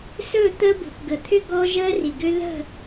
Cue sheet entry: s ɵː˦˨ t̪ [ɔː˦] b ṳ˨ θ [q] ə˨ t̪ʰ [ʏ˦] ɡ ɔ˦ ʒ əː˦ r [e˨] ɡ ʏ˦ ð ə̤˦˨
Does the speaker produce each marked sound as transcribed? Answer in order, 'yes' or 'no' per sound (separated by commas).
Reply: no, no, yes, no